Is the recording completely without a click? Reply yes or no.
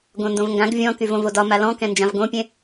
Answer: yes